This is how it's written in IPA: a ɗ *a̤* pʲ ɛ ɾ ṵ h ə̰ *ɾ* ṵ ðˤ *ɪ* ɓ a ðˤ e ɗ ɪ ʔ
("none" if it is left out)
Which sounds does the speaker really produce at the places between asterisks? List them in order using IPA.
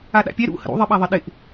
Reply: a̰, ɾ, ɪ

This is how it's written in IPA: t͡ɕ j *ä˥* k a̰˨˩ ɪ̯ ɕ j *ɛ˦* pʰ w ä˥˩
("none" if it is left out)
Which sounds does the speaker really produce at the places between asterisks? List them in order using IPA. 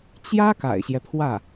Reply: ä˥, ɛ˦

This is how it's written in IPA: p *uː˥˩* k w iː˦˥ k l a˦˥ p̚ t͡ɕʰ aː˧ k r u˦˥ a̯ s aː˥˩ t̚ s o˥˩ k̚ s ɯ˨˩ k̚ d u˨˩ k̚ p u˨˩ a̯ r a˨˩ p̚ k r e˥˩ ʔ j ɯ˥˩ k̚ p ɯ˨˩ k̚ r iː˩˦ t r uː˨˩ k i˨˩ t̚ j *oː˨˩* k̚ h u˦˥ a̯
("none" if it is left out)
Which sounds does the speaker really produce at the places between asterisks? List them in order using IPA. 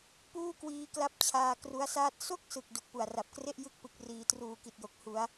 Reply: uː˥˩, o˨˩

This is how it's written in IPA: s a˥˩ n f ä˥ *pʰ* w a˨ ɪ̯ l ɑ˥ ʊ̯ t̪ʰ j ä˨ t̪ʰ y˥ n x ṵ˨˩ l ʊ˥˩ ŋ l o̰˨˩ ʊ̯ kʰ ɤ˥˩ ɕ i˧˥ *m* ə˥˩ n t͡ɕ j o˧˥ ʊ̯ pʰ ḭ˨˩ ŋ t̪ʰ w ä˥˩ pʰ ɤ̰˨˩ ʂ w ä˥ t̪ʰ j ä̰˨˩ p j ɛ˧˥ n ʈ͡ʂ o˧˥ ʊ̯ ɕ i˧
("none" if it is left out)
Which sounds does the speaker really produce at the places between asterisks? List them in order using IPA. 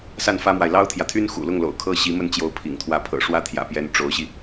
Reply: m, m

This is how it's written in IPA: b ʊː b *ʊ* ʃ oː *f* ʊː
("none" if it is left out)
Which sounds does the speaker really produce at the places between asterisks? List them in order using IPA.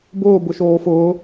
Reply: ʊ, f

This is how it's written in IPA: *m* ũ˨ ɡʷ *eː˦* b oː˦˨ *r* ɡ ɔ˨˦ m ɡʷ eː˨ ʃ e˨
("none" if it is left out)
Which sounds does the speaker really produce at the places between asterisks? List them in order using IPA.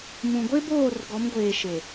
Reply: m, e˦, r

